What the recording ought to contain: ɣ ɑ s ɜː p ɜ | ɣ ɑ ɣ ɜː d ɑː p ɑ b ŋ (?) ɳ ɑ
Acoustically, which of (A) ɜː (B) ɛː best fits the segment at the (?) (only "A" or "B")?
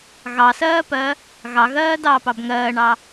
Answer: A